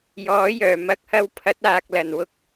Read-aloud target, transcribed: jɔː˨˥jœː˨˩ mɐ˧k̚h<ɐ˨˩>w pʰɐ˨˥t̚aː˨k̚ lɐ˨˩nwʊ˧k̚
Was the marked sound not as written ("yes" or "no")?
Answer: yes